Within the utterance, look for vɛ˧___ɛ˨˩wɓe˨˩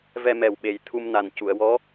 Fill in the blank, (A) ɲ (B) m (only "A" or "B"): B